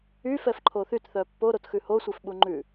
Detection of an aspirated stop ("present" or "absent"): present